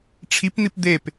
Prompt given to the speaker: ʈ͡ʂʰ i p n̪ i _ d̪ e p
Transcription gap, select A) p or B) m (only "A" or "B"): A